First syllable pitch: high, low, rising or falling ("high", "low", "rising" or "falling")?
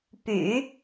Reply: low